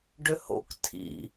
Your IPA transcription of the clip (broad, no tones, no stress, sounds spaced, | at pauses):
ɖ ʏ h o̰ k tʰ ḭ